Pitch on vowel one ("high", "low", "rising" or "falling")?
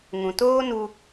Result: low